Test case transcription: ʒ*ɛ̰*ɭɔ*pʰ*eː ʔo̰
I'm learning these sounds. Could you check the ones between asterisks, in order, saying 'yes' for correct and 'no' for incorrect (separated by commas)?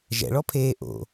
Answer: yes, yes